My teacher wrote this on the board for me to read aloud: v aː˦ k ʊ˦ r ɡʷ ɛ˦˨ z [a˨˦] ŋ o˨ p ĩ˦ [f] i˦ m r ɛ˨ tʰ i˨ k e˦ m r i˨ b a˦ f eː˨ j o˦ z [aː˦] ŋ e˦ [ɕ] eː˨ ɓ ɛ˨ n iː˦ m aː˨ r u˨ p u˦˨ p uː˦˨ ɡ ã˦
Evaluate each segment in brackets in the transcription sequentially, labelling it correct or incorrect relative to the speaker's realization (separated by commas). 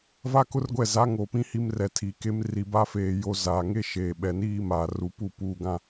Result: correct, incorrect, incorrect, incorrect